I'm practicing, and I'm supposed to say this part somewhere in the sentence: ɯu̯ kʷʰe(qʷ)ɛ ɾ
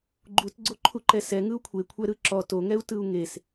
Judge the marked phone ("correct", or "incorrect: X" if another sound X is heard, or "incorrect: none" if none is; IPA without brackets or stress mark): incorrect: kʷʰ